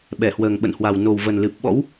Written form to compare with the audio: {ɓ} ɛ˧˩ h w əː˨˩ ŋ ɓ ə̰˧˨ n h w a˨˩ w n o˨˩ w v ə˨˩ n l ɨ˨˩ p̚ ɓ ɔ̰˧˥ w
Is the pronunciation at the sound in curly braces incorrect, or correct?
correct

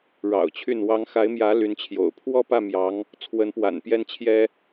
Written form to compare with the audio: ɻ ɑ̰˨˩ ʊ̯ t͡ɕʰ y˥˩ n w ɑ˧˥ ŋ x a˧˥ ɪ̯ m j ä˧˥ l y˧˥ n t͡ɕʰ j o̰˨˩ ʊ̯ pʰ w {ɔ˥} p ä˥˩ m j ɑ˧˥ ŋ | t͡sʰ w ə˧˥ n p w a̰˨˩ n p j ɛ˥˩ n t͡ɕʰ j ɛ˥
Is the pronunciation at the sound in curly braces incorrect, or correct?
incorrect: ɔ˥˧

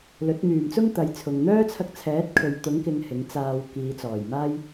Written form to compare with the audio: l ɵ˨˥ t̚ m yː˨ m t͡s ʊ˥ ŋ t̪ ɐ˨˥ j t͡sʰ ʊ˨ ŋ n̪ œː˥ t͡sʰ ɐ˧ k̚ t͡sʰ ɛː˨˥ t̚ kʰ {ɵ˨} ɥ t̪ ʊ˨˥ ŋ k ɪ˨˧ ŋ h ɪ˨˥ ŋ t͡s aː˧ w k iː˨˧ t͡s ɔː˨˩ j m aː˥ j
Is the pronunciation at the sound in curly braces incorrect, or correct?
correct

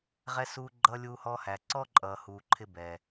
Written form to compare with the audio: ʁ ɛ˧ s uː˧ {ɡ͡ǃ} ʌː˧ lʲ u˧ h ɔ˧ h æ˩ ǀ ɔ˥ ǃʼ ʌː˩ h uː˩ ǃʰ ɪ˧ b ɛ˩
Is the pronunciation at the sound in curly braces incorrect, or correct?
correct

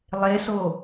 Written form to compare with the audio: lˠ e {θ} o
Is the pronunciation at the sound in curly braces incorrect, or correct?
incorrect: s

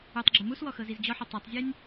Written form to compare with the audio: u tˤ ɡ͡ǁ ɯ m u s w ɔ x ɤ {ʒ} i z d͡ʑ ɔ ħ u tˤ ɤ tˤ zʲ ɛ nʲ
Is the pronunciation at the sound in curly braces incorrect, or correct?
incorrect: z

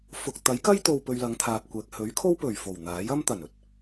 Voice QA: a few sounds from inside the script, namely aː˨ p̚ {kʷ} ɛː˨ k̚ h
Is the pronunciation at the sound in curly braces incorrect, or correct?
correct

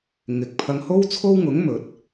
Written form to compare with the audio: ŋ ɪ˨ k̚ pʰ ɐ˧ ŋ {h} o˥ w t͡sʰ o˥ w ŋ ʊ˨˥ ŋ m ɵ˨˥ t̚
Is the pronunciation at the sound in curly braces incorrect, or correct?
correct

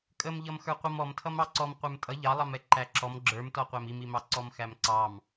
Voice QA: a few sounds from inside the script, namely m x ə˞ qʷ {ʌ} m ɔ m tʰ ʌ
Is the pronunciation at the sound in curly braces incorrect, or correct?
correct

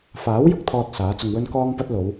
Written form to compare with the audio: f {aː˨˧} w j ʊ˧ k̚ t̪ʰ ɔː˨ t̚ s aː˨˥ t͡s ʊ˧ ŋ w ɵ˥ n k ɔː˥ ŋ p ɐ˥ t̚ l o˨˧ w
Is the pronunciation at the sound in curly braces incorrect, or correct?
incorrect: aː˨˥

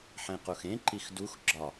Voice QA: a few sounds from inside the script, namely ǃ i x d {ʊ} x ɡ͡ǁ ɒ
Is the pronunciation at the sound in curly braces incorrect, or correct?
incorrect: u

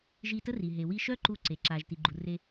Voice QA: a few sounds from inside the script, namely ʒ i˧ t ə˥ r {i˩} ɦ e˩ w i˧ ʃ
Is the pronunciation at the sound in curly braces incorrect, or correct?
correct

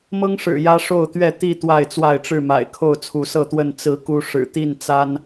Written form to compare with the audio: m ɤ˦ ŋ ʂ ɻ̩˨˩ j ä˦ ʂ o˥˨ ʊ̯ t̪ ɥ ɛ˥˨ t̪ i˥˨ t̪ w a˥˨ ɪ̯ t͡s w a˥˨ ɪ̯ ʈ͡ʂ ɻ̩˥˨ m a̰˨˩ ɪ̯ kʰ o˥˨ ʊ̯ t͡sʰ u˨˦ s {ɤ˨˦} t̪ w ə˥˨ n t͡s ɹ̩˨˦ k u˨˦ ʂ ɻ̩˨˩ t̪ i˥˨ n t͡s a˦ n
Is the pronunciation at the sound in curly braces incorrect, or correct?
incorrect: ɤ˥˨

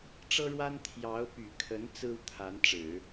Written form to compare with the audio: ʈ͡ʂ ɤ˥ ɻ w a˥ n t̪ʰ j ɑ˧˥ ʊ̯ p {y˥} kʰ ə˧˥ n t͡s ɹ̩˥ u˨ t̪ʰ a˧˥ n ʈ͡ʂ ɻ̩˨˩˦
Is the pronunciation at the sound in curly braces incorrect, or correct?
incorrect: y˨˩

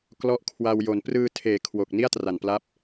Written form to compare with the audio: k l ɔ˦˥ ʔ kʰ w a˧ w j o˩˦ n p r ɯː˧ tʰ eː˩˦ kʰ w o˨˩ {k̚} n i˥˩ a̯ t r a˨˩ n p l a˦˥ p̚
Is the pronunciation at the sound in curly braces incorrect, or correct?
correct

